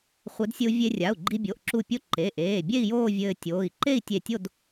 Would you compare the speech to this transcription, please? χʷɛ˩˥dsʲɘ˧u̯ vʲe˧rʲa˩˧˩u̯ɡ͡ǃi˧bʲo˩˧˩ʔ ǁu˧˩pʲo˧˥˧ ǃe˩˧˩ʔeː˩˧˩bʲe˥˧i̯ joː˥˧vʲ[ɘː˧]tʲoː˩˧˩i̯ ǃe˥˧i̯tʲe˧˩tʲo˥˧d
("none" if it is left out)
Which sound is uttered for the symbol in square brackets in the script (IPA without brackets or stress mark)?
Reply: ɘː˧